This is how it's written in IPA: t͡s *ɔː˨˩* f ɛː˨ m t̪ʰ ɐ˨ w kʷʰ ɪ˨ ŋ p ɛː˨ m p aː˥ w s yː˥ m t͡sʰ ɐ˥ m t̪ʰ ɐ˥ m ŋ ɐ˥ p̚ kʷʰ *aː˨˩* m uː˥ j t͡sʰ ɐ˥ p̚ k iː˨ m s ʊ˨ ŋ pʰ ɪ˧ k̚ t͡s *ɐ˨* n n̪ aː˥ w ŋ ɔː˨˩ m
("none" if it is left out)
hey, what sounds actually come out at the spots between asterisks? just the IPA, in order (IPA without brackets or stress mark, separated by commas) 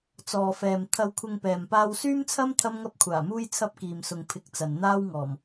ɔː˨, aː˨˩, ɐ˨